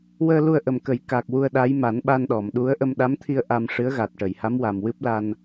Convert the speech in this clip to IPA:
w əː˧ l u˧ ə̯ ʔ ə˨˩ m k ə˨˩˦ j k a˨˩ k̚ w u˧ ə̯ ɗ a˧˥ j m a˨˩˦ n ɓ a˧ n ɗ ɔ˨˩˨ m ɗ u˧˥ ə̯ ʔ ə˧ m ɗ a˧˥ m t̪ʰ i˧ ə̯ ʔ a˧ m ʂ ɨ˧˥ ə̯ ɣ a˨˩ t̚ ʈ ə˨˩˨ j h a˧˥ m w a˨˩ m w ɨ˦˥ p̚ l a˧ n

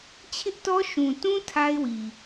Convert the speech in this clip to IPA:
t͡ɕʰ ɪ˦ ʔ t ɔ˦ ʃ ũ˨ t ũ˦ tʰ a˦ ɪ̯ w i˨

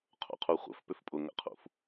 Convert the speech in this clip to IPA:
qʰ o̰ qʰ u χʷ ə̰ f p ʏ f pʼ ʊ ŋ ə̰ qʰ ṵ f

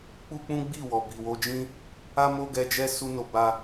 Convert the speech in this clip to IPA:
k͡p u˦ k͡p ũ˦ ɡ͡b i˦˨ w ɔ˨ b i˨ w o˧ d͡ʒ ĩ˦ | a˦ m o˦ ɡ ɛ˧ d͡ʒ ɛ˦ s u˧ n o˨ b a˧

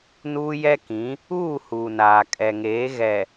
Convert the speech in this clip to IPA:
n uː˦ j ɛ˦ k ĩ˨˦ | uː˦˨ h uː˨ n aː˨ kʼ ɛ˨ ŋ eː˨˦ ɣ ɛ˨

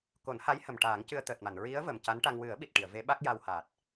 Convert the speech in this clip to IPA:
k o˨˩˦ n h a˧˥ j h ə˨˩ m ʈ aː˨˩˦ ŋ c ɨ˧ ə̯ t̪ əː˨˩ t̚ m a˨˩˨ n ɹ i˧˥ ə̯ v ə˨˩ m c a˧˥ n ʈ a˧ ŋ w ɨ˨˩˦ ə̯ ɓ i˨˩ t̚ ʈ i˨˩˨ ə̯ v e˧˥ ɓ a˦˥ k̚ j a˧ w h aː˨˩ t̚

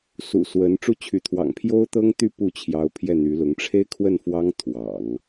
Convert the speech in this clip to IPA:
s ṵ˨˩ s w ə˧˥ n ʈ͡ʂ u˥˩ t͡ɕʰ y˧˥ t̪ʰ w ɑ̰˨˩ ŋ pʰ j o˥ ʊ̯ t̪ ɤ˥ ŋ t̪ y˥˧ p u˥˩ t͡ɕʰ j ɑ˧˥ ʊ̯ pʰ j ɛ˥˩ n̪ y˧˥ l ʊ˧˥ ŋ ʈ͡ʂʰ e˥ ɪ̯ kʰ w ə˥˩ n f w ɑ˥ ŋ t̪ʰ w ɑ̰˨˩˦ ŋ

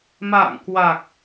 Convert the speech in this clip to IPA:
m a̰ː˧˨ ŋ k w a˨˩ k̚

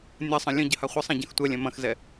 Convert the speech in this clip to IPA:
nʲ ɐ sˤ ə̃ lʲ ə̃ ɟ ə h a χʷ ə sˤ ã ɟ ɐ̃ x tʷ ɛ lʲ ɛ̃ m ɐ̃ x z ɛ

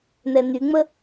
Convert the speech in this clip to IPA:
n̪ ɛ n̪ y ŋ͡m ə

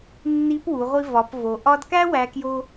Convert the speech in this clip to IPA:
nː i˧˥ p w u˩˧ ʁʷ i˧ v ɒ˩˧ p v o˩ ʔ ɒ˧ d k æ˥ w æ˧˥ k j o˥

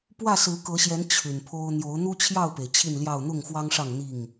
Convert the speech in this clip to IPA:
p w ä˥˨ s ɹ̩˨˦ k ɤ˨˦ ɕ j ɛ˨˦ n t͡ɕʰ y˨˩ n pʰ o˦ ʊ̯ n̪ j o˨˦ ʊ̯ n̪ u˦ t͡ɕʰ j ɑ˥˨ ʊ̯ p e˩ ɪ̯ t͡ɕʰ i˥˨ n l j ɑ˥˨ ʊ̯ n̪ ʊ˥˨ ŋ x w ɑ˦ ŋ ʂ ɑ˥˨ ŋ n̪ i˥˨ ŋ

